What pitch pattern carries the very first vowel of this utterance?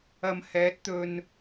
low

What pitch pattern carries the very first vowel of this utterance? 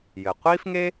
low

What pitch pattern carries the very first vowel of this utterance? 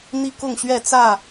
high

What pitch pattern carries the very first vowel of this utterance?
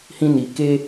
high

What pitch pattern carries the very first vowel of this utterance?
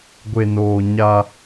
low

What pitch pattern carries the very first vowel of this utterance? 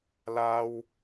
high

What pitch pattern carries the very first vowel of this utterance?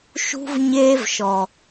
high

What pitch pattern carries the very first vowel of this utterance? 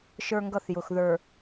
high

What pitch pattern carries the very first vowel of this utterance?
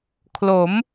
rising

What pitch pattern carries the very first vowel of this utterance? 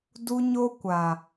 high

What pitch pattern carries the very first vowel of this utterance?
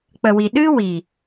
low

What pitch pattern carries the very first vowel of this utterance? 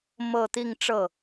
falling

